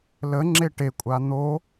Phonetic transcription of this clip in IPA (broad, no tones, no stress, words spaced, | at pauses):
lə ŋ͡ǁeʈekʷʼa n̪o